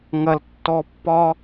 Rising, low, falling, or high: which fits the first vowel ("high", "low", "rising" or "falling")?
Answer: low